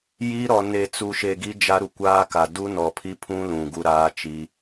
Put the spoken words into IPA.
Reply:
j i˦ ɾ ɔ˨ n e˨ t͡s u˨ ʃ e˨ ɡ i˦ d͡ʒ a˦ ɾ u˨ kʷ aː˦ k a˨ d u˦ n ɔ˨ pʰ i˦ pʰ ũ˦ l ũ˨ ɡ u˦ ɾ aː˦ t͡ʃ i˦

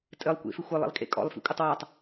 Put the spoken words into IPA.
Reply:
tʼ ɘ lˠ kʷ ḛ f ɪ xʷ ɘ lˠ ḭ lˠ kʼ ḛ kʼ ɔ̰ lˠ f ḭ kʷʼ ɘ tˤ w a tˤ

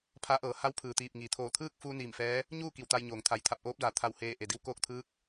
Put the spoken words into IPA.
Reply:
pʰ a˧˥ ʔ ɤː˩˧ h a˧˥ w pʰ ɯː˩ t̪ iː˧˩ p̚ ŋ iː˩ t̪ʰ oː˧˩ t̪ʰ ɯː˥˨ k̚ f uː˧ n iː˧˩ m f ɛː˧˥ | ɲ uː˥˨ k i˧˩ w t̪ a˧ j ɲ oː˩ ŋ t̪ʰ a˩ j t̪ʰ a˧˩ p̚ ʔ oː˧˥ p̚ d aː˩ t̪ʰ a˧˩ w h eː˧˩ ʔ e˩ d i˧ w k oː˥˨ k̚ t̪ʰ ɯː˧˥ k̚

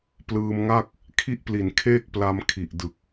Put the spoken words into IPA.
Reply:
p l ɯː˧ m ŋ a˥˩ k̚ | kʰ i˥˩ ʔ p l i˨˩ n kʰ eː˥˩ k̚ p l a˧ m kʰ i˨˩ ʔ d ɯ˨˩ k̚

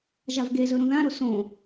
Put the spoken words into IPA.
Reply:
ʒ a v ɡ e z ɵ ɾ ũ ð ã ɾ o s õ

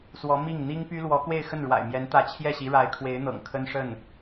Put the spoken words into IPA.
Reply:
s w ɔ˧˥ m i˥˩ ŋ n̪ i˥ ŋ p y˥ l w ɔ˧˥ k w e˥˧ ɪ̯ x ə˥˩ n ɻ w a̰˨˩ ɪ̯ m j ɛ˧˥ n t̪ ä˧˥ t͡ɕʰ j ɛ˥˩ ɕ i˧˥ ɻ a˧˥ ɪ̯ kʰ w e˧˥ ɪ̯ n̪ ɤ̰˨˩ ŋ kʰ ə˥ n ʂ ə˥˩ n

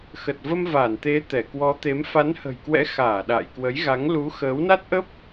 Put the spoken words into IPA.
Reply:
x ə˨˩ t̚ v ə˧ m v a˧˩ n t̪ e˨˦ t̪ ɛ˧˩ k w ɔ˨˦ t̪ e˨˦ m f a˨˦ n h ə̤˨˩ j k w ɛ̰˧˥ x aː˧˩ ɗ a̰ː˧˨ j k w ə˨˦ j ɣ a˨˦ ŋ l u˨˦ x əː˨˦ w n a˦˥ t̚ ʔ ə˦˥ p̚

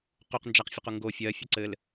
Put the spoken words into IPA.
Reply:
q u q n d͡ʒ a q fʲ ɘ q u ŋ ɡ o fʲ ɜ fʲ ʌ ǀ ɘ l

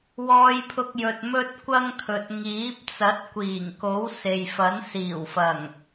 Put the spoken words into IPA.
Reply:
w ɔː˧ j pʰ ʊ˧ k̚ j ɵ˨ t̚ m ɵ˥ t̚ kʷ ɐ˥ ŋ kʰ ɵ˨ t̚ ŋ iː˨˥ p̚ t͡s ɐ˨˥ t̚ kʷ iː˨˩ ŋ k o˨˥ w s e˨ j f ɐ˨˥ n s iː˨˩ w f ɐ˨˩ ŋ

